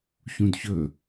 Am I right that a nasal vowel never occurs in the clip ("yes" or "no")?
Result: no